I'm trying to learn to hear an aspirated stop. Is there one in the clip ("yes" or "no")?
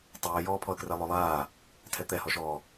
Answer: yes